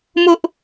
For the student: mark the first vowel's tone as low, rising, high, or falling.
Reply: high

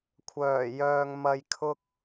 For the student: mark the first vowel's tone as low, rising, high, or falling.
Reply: low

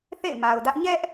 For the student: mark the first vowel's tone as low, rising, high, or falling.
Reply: falling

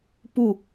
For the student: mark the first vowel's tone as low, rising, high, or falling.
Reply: falling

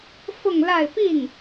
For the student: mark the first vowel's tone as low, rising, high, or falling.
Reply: falling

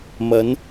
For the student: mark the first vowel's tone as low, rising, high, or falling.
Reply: rising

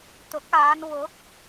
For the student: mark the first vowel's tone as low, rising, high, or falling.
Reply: rising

